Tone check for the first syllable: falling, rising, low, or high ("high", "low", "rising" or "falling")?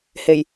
low